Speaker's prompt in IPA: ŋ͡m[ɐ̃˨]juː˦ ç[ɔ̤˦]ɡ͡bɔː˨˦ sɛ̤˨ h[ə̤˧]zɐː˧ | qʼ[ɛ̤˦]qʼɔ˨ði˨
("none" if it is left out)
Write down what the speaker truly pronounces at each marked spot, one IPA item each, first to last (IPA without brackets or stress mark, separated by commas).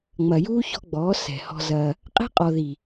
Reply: ɐ˨, ɔ̤˦, ɔ̤˧, ɛ̤˦